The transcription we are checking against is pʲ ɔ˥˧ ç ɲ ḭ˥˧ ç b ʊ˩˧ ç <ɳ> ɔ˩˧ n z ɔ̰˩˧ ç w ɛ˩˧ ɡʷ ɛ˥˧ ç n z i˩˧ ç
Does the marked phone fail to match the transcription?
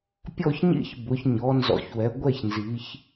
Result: yes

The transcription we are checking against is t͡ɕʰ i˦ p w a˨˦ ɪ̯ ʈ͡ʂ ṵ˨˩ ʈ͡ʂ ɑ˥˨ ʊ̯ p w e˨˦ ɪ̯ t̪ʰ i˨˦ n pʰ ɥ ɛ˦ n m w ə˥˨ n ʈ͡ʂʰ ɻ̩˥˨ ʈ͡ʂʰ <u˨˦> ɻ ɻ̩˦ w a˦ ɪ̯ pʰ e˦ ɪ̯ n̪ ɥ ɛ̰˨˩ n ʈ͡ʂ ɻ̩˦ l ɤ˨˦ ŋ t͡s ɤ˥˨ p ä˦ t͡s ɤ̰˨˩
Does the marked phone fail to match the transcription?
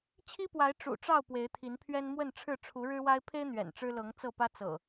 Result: no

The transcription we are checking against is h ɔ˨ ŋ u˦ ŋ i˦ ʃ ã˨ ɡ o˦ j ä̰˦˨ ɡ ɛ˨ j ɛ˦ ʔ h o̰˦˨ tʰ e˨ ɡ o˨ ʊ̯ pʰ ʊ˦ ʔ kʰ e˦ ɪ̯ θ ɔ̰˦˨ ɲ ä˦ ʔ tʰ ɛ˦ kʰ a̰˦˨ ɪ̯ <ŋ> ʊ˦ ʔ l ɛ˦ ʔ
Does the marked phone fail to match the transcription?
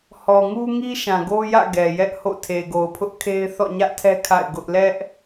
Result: yes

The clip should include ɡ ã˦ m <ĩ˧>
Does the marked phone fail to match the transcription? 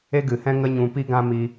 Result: yes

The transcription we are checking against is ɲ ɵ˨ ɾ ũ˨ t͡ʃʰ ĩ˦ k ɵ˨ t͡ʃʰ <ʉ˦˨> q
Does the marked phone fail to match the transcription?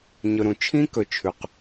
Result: yes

